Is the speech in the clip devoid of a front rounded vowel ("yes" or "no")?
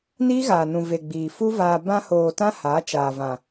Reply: yes